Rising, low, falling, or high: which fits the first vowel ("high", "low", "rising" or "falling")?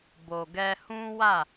low